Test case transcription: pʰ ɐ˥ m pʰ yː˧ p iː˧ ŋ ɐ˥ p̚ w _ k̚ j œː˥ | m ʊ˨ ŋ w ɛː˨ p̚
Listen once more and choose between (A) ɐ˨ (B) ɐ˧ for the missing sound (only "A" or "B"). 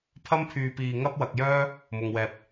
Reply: B